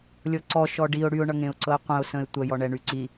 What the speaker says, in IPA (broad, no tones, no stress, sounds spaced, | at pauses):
lʲ ɤ ǀ ɔ ʃ ɔ ɖ i ʊ̯ ɽ y ʊ̯ ɳ ʌ ŋ ẽ ʊ̯ ǀ ɤ ɪ̯ qʷ ə̃ ʊ̯ s ə̃ ɪ̯ tʷ ə j ɔ ɳ ɛ ɳ y ǀ i